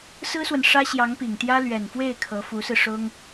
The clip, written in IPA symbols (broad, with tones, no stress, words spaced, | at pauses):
sɹ̩˥swə˨n ʂä˥ɕjɑ˧˥ŋpi˨˩ŋt̪jä˥ lɥɛ˨˩nfwe˥˩ɪ̯ kʰɤ˧˥fu˧˥sɹ̩˧ ʂʊ˥ŋ